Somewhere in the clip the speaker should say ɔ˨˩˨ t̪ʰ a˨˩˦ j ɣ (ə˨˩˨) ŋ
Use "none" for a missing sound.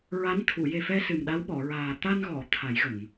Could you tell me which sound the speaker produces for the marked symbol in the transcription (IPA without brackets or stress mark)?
ə˨˩˨